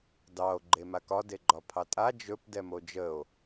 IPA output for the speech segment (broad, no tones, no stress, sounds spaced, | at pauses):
d ɑ o̯ ɡ͡ǃ e m a k ɒ d e ɡ͡ǃ ɒ pʰ ɑ tʼ a d͡ʒ ɵ p d ɛ m o d͡ʒ ə o̯